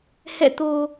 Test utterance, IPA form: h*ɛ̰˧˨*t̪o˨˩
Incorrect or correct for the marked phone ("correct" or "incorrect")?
correct